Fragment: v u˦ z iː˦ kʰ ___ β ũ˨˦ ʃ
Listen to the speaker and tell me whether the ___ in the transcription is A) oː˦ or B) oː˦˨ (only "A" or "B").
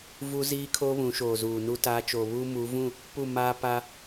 A